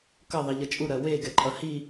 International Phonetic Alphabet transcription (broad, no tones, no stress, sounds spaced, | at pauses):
k ʌ ðˤ i ʎ ʌ t͡ʃʼ u ɾ ɜ w e ɡ ɛ ǃʼ ʌ h i